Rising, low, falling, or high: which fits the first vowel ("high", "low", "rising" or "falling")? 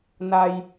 low